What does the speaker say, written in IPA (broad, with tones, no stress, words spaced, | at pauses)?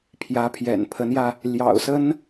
pʰjä˧˥pʰjɛ̰˨˩n pʰə˧˥njä˧ | ljɑ̰˨˩ʊ̯ sə˥n